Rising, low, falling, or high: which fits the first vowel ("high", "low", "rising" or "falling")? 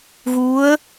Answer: rising